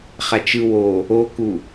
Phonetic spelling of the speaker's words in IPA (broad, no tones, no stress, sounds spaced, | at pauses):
χ a t͡ʃ ɯ w o | o k u